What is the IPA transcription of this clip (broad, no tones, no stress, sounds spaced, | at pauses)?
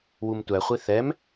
w u m tʷ æ χʷ i θ ɛ m